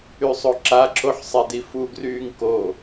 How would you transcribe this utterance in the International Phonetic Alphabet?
y sˤ o ǁ a ǁ o ħ sˤ e d i f u ɡ r yː ŋ k o

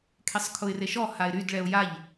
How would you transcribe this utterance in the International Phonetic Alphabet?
kʰ e sˤ kʰ ʊ ɪ̯ r e ʃ ɔ h a ɪ̯ ɾ y d ɭ ɛ ʊ̯ j a ʎ

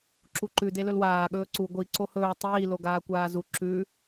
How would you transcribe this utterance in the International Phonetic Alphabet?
ǁ u ǃ ʉ d e l ɵ l w aː ɠ ɵː ǀ u ɡʷ i ǀ o h ɵː tˤ iː l o ɡ aː kʷ aː z u ǁ ʉ

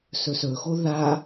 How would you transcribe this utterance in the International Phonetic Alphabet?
s ɵ s ɵ x o ð a

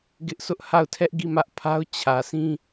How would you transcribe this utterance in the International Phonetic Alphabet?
ɡ ɪ˦ ʔ sʰ ʊ˦ ʔ h a˦˨ ʊ̯ tʰ ɛ˦ ʔ ɡ i˦˨ m ä˦ ʔ pʰ a˦ ʊ̯ t͡ɕʰ ä˨ s ĩ˦

